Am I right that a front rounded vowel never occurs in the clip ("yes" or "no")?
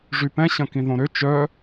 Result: no